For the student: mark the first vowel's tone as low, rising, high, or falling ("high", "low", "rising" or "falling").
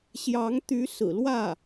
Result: rising